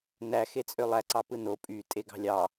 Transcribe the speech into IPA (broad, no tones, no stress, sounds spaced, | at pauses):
n æ x e t͡sʼ ø lˠ æ ǀ ɑ p ɯ n o pʼ y tʼ e ɡ ɑ̤ lʲ ɑ